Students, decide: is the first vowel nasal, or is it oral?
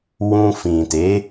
nasal